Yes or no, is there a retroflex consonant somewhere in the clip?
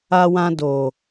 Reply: no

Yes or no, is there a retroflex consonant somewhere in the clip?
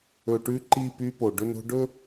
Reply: yes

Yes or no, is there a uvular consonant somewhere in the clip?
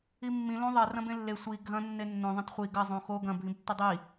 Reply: yes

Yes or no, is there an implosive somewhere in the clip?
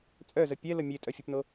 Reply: no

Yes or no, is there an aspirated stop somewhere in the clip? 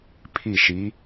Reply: yes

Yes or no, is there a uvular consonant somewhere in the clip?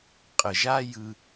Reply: yes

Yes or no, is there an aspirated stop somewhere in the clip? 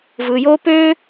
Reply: no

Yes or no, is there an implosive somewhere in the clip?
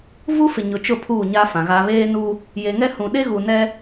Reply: yes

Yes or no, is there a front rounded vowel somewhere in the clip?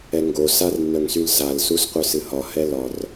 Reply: yes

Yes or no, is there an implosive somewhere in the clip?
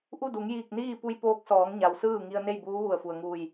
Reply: no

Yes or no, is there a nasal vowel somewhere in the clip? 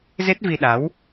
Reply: no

